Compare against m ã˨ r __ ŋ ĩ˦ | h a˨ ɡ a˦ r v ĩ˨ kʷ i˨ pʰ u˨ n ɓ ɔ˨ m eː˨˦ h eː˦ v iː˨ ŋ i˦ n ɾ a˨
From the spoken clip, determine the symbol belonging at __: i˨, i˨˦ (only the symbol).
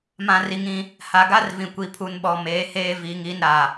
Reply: i˨